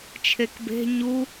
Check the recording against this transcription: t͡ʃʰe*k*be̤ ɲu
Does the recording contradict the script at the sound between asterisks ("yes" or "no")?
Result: no